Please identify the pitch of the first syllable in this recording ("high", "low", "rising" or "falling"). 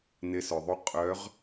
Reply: rising